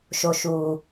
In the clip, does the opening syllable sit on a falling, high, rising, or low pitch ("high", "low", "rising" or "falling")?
high